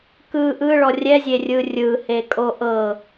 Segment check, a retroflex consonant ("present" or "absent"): present